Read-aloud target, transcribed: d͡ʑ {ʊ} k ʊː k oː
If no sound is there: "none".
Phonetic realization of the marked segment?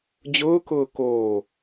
ʊː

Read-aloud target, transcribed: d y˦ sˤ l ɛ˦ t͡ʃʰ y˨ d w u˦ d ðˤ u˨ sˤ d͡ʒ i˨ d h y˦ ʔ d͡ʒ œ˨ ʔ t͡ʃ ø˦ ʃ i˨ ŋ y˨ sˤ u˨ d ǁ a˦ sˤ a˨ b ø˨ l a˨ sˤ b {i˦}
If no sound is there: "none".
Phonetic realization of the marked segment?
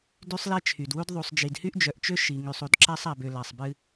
ɨ˦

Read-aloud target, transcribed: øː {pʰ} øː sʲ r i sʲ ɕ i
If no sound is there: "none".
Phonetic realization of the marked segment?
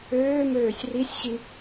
m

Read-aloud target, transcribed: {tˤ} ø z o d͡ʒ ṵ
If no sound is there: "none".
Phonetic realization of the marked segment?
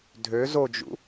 dʱ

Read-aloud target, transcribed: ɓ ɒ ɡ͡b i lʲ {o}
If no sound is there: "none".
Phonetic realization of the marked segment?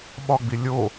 o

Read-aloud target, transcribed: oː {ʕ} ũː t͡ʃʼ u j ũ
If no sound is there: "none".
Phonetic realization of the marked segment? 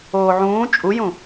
ʕ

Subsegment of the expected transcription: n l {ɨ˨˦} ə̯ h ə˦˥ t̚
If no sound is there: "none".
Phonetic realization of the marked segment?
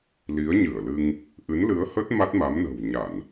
ɨ˨˦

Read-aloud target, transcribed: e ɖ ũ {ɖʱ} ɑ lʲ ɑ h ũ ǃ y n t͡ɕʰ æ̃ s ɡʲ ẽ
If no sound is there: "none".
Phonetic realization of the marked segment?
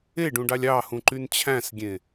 ɖ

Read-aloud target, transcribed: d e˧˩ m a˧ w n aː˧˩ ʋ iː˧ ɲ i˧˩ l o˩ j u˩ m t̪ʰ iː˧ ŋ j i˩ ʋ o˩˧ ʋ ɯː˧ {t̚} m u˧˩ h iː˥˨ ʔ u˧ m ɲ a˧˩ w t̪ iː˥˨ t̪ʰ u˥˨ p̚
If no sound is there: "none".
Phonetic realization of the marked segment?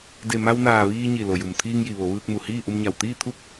k̚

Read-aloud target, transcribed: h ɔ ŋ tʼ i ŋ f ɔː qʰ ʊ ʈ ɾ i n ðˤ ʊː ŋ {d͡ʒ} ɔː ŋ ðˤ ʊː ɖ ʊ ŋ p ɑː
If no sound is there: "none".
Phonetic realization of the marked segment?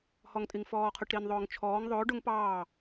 t͡ʃʰ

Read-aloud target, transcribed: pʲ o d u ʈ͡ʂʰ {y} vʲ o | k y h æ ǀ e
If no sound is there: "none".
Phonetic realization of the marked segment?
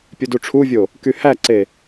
u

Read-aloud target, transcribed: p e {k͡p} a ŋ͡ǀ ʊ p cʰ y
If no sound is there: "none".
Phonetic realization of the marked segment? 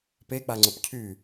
k͡p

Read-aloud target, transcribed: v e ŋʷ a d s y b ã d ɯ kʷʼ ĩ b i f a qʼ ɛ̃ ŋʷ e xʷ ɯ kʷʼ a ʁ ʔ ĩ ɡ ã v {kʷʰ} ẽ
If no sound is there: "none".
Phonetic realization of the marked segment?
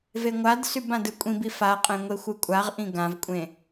kʷʼ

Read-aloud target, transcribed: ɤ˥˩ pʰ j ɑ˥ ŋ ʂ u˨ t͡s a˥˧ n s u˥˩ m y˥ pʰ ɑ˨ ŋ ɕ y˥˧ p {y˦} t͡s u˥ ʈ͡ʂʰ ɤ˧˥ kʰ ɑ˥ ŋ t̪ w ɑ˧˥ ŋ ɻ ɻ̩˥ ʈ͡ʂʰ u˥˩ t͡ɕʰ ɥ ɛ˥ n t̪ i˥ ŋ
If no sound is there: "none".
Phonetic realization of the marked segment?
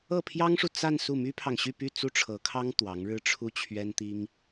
y˥˩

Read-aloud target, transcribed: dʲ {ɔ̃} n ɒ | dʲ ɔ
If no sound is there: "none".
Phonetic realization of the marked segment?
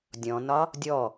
ɔ̃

